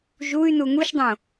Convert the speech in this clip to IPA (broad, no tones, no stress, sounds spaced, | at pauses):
ʒ u y̯ n u ŋ u ʃ dˤ õ